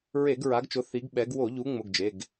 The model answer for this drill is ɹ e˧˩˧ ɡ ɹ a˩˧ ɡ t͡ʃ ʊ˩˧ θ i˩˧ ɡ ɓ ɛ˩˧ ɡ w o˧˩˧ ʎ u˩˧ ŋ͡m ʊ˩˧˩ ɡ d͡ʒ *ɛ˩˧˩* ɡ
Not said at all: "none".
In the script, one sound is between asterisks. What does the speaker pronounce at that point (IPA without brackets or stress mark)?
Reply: e˩˧˩